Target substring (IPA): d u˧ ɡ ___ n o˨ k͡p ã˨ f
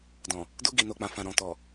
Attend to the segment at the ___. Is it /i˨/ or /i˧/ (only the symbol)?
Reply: i˨